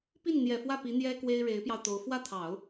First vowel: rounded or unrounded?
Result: unrounded